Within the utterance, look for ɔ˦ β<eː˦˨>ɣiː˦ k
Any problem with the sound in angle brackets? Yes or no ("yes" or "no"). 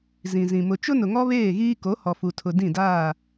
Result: no